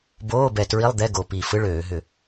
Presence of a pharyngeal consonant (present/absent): absent